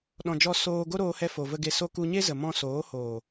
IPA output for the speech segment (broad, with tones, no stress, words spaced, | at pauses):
ɗɔ̃˨d͡ʒɔ˧ soː˧ ɡo˦ɾoː˧hɛ˧ fo˨və˧ɡe˧so˦ ku˧ɲe˦zə˨mɔ̃˧ soː˨˦hoː˨